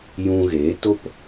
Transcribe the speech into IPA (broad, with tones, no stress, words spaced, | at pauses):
jũ˧ɣeː˨˦to˦p